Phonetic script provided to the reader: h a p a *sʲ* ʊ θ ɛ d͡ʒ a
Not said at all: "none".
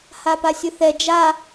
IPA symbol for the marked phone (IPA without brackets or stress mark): sʲ